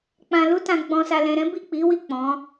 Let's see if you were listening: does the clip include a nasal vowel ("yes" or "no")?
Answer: yes